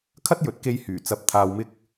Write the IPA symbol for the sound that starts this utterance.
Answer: kʰ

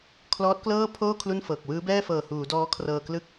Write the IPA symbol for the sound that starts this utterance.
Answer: kʰ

